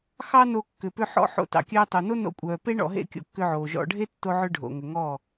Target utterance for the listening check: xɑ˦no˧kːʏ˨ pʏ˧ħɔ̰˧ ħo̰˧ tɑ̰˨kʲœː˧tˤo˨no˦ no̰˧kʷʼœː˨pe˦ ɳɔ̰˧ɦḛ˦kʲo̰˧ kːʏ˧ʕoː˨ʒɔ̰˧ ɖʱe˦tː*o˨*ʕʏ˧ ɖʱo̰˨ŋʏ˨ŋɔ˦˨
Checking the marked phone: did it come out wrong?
yes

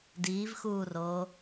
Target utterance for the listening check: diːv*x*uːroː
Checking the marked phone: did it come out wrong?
no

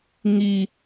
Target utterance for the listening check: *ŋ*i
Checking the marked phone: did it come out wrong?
no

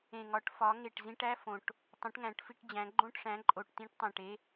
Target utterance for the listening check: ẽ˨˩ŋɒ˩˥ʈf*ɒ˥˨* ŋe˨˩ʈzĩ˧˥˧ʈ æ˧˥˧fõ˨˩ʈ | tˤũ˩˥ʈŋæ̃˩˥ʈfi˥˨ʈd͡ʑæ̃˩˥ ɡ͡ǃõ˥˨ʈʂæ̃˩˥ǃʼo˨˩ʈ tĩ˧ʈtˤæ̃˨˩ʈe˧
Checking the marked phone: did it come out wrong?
yes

